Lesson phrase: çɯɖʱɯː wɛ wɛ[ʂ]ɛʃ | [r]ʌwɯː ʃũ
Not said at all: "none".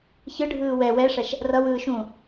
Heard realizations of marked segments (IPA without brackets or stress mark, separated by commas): ʂ, r